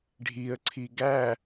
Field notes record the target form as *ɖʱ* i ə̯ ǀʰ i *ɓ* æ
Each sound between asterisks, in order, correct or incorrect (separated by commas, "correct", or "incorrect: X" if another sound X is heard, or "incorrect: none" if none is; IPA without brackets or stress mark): correct, incorrect: ɡ